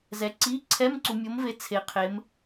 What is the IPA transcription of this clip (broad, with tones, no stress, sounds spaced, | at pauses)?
z ɛ˨ ǀ i˧˥˧ ǀʰ ɛ˧˥˧ m ǀ u˨ mʲ o˨˦ m v e˨˦ t͡sʰ e˨˦ qʰ e˨˦ m